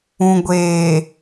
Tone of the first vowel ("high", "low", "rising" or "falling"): low